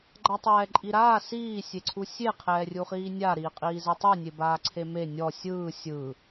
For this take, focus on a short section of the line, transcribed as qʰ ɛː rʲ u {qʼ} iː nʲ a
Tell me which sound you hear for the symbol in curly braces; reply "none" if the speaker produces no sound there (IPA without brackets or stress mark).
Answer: χ